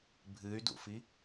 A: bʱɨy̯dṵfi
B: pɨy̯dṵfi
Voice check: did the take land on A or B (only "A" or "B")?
A